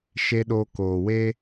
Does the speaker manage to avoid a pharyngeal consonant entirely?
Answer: yes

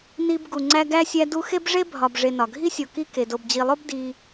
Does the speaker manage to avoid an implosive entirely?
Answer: yes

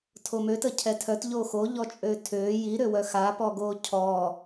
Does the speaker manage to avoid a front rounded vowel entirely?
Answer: no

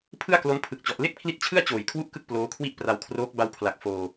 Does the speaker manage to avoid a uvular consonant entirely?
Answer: yes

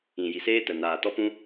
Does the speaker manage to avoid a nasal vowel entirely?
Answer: no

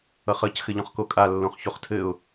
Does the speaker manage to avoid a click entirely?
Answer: yes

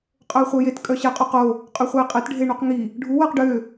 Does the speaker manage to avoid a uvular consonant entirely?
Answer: no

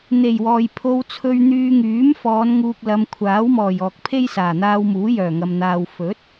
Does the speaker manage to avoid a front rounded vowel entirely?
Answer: no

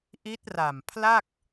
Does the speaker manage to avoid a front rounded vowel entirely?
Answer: yes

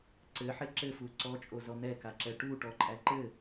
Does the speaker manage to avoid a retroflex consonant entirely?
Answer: no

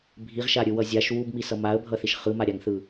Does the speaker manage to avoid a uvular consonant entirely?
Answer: no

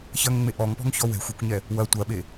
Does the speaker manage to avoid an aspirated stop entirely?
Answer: yes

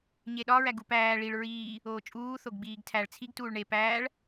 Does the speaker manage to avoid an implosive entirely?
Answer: no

